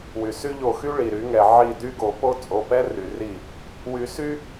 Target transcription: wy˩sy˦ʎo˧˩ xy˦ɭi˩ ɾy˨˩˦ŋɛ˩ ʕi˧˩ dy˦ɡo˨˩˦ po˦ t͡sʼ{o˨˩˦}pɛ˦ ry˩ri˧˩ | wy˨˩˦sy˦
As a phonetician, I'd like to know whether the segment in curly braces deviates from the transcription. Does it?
yes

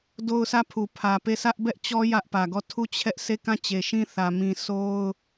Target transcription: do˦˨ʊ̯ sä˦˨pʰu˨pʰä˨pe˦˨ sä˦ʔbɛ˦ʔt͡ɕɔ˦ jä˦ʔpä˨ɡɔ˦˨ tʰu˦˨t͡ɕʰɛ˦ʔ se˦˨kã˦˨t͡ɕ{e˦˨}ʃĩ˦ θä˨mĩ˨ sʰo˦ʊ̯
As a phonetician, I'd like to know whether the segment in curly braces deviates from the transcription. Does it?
yes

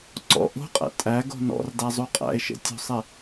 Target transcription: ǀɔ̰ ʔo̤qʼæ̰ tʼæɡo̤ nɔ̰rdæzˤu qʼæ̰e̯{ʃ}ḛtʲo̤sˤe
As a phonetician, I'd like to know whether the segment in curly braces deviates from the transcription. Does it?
no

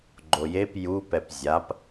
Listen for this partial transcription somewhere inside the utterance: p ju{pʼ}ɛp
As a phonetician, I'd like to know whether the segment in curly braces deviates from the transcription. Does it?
yes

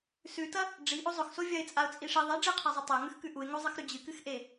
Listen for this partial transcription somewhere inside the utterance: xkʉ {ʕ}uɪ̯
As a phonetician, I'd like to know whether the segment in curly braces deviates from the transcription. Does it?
yes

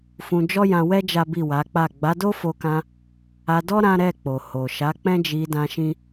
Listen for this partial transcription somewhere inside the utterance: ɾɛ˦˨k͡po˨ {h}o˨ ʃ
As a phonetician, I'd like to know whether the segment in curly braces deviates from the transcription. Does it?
no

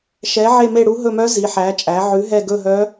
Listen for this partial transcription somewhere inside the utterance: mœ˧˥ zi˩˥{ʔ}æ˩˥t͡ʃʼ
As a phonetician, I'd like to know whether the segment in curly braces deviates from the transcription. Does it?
yes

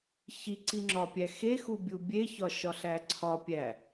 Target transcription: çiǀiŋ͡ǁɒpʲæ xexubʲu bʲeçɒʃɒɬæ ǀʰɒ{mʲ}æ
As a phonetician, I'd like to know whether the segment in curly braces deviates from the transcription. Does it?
yes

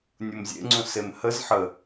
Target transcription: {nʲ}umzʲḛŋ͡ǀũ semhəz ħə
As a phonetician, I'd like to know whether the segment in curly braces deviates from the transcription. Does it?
no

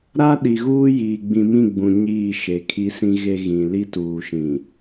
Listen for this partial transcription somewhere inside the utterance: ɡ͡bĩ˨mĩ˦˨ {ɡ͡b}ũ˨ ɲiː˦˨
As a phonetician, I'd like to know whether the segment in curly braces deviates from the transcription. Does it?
no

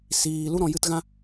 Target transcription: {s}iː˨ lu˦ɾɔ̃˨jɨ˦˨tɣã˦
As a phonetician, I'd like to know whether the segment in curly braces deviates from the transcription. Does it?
no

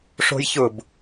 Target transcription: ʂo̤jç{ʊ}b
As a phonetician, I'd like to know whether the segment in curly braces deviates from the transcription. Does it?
no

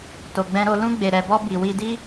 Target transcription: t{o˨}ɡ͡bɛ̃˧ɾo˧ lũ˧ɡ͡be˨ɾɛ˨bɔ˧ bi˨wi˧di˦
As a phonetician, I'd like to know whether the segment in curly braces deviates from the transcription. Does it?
no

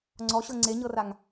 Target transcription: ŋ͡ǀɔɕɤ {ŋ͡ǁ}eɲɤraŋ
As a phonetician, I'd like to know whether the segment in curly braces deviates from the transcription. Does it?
yes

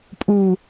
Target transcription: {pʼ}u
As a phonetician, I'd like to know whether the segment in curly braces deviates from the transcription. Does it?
no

